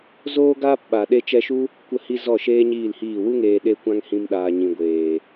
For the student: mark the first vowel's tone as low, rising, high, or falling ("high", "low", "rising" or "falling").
high